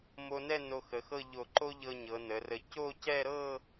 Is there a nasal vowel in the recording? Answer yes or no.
no